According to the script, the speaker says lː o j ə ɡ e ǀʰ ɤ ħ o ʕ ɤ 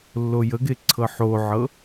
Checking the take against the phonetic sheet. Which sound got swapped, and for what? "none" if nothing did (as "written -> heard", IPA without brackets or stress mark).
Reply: none